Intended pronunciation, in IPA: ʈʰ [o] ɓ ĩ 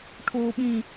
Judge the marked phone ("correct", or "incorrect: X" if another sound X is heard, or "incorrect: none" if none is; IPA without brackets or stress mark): correct